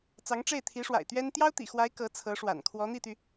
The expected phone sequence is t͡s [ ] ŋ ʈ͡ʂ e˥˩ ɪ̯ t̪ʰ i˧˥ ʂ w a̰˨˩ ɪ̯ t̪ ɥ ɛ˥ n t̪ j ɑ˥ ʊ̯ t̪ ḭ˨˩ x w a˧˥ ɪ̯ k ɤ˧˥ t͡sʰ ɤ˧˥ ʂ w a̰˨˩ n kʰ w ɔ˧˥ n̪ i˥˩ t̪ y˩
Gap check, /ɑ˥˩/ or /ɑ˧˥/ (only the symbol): ɑ˧˥